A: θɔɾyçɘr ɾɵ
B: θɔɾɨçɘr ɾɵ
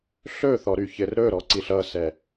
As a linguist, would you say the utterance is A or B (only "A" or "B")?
A